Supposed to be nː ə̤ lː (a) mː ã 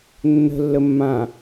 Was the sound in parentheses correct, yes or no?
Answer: no